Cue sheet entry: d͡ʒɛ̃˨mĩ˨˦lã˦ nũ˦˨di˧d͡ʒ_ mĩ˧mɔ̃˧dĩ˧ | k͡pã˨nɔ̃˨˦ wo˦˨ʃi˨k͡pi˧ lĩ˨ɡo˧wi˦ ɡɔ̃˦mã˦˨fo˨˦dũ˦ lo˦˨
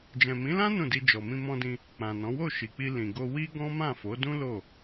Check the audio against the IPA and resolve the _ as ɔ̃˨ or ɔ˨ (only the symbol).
ɔ˨